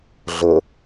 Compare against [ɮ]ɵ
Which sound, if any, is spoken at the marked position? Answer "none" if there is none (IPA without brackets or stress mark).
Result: ɮ